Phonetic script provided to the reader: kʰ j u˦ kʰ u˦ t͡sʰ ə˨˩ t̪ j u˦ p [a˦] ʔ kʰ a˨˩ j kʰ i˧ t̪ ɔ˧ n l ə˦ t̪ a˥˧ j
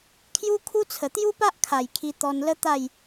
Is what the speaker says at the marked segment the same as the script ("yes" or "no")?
yes